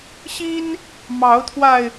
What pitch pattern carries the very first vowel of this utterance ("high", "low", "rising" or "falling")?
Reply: high